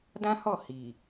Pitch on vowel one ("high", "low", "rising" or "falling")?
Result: high